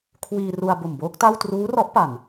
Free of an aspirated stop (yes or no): no